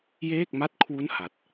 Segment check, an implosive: absent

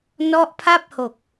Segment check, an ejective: absent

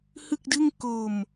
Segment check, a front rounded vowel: absent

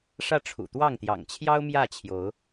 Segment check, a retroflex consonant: present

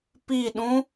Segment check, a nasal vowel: present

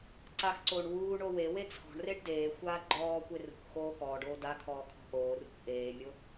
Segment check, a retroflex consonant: present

